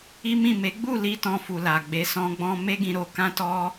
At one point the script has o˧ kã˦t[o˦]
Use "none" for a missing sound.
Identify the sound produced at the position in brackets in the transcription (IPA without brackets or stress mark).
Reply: ɔ˦